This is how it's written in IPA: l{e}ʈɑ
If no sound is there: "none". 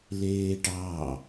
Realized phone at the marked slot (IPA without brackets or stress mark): eː